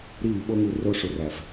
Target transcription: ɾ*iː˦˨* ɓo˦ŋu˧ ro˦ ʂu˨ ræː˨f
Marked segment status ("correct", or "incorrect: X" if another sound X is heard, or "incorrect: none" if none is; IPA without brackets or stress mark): correct